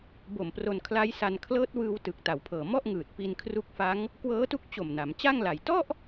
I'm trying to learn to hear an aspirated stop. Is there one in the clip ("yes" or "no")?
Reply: yes